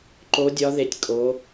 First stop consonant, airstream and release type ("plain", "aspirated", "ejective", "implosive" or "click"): click